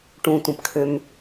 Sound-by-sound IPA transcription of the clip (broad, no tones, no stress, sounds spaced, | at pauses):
ʈ ũ tʷ ə̃ p kʰ ø m